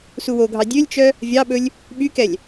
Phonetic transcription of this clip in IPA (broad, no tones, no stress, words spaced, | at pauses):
suwoɡʱɑ dʲølʲt͡ʃœ | vʲɑɓɵlʲ | ɓykɛlʲ